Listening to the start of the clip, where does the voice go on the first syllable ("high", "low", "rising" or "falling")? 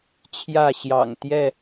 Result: falling